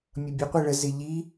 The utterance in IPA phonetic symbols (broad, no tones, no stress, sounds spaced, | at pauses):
mʲ ʌ bʲ ʊ qʷ ɪ ɭ ə z ɪ ʎ i